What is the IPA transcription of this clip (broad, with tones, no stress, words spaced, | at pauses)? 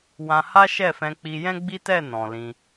wã˧ha˦ ʃɛ˦˨fɛ̃˧k͡pi˧ jɛ̃˦ɡ͡bi˦tɛ˦˨ nɔ̃˨lĩ˧